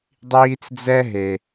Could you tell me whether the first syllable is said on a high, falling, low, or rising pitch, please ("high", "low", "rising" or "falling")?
high